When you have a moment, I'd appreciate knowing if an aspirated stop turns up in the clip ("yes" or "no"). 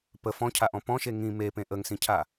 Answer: yes